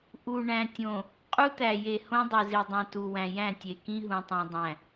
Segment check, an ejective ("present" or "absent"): present